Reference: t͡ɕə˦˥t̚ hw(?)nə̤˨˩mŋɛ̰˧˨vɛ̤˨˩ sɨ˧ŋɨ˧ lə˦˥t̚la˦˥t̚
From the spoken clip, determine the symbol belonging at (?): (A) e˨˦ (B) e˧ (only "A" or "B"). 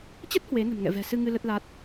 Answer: A